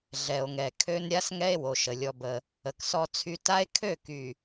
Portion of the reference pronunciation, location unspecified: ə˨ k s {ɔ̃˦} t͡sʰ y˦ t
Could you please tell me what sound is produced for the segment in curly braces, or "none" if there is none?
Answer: ɔ˦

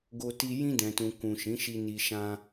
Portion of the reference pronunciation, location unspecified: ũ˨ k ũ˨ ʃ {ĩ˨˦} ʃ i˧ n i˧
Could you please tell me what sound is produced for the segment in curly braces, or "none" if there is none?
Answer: ĩ˨˦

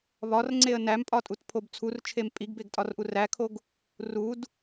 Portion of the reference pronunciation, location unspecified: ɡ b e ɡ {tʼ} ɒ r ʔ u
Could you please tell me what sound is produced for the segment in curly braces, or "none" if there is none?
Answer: tʼ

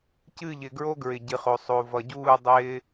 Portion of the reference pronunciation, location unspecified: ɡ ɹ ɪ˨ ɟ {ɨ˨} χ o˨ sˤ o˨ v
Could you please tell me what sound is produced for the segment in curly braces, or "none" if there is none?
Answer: ɨ˨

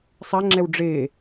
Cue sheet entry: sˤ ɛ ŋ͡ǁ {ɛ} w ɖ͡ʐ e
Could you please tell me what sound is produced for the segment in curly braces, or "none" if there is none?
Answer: ɛ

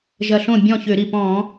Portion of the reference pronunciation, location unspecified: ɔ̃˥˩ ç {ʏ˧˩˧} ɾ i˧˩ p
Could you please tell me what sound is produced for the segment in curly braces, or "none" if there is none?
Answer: ʏ˧˩˧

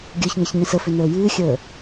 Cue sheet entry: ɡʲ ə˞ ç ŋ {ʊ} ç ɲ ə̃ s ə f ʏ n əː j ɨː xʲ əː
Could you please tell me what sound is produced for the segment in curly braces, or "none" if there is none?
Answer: ə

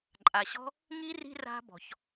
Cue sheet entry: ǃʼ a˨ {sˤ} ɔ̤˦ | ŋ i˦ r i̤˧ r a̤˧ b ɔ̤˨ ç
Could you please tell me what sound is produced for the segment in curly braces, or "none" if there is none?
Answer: ɕ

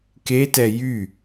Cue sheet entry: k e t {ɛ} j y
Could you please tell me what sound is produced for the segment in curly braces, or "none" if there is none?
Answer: ɛ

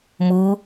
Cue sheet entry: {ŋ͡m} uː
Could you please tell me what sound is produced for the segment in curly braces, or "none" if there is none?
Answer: m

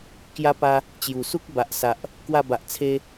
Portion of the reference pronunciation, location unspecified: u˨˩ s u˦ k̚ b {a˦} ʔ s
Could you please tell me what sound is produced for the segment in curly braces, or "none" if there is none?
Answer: a˨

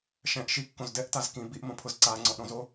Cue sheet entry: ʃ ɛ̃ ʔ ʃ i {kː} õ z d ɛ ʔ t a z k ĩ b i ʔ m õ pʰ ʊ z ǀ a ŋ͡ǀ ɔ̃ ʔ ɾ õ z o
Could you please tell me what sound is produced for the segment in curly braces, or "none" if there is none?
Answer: kː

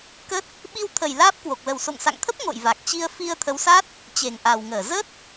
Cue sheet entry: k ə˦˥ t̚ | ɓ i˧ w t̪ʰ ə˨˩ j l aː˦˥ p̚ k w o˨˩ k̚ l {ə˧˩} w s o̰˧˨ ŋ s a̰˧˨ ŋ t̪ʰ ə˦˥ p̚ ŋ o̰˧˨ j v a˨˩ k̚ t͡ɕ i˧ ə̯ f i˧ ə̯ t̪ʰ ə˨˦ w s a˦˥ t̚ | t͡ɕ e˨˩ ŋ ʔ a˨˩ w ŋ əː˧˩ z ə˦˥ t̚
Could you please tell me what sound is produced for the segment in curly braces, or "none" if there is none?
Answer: ə˨˩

